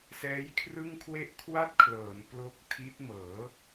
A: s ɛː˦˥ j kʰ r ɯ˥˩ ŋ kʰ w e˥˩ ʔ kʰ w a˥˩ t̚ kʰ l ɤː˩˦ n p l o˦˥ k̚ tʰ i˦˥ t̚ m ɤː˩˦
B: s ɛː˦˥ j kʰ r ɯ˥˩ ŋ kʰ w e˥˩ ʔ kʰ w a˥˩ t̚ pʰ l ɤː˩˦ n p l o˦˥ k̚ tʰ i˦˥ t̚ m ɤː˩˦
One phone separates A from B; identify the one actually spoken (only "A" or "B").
A